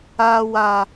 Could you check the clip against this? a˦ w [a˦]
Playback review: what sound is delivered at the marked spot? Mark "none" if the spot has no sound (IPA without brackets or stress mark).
a˦